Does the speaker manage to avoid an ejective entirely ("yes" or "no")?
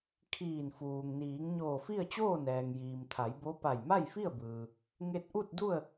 yes